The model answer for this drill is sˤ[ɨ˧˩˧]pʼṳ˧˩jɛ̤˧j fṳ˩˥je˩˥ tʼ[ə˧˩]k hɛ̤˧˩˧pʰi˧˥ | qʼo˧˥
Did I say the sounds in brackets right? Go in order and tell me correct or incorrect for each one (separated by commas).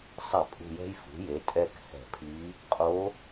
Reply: incorrect, incorrect